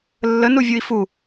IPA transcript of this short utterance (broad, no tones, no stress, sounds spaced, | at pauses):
lː ə n u vʲ u i̯ f u